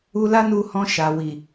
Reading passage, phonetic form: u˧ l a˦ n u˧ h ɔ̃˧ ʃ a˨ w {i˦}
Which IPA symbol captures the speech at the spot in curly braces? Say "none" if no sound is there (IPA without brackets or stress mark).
i˨